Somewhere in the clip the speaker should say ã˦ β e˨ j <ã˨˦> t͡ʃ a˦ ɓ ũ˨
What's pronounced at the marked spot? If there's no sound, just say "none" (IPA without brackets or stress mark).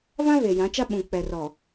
ã˨˦